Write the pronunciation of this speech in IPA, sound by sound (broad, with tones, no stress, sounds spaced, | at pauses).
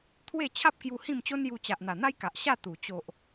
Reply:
t̪ʰ w e˥˧ t͡ɕʰ a˦ p̚ k j u˧ h ĩ˥˧ m t͡ɕ o˦ n j u˧ t͡ɕ a˨ ʔ n̪ a˨˩ n̪ a˦ j k a˨ ʔ ɕ a˥˧ t̪ u˨˩ t͡ɕ o˨ ʔ